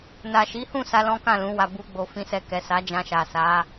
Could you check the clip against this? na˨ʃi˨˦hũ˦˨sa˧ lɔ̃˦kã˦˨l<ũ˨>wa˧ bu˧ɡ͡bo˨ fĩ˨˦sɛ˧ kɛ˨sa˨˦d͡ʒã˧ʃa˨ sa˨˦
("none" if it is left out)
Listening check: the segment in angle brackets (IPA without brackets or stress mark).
ũ˨˦